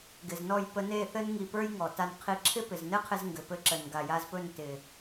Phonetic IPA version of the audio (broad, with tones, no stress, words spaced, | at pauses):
ɡɪ˨znɔ˦˨j pə˧ne˦˨θɘ˦n ŋi˧pə˞˦jŋɔ˨ ta˧nqʰi˧ ǁʰɪ˦pɪ˨znɘ˦qʰɪ˧z ŋɡɘ˨pɘ˧ǁə˨n ɡa˨ja˧zpɵ˦˨n tɪ˨